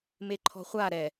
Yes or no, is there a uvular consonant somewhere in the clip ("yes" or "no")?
yes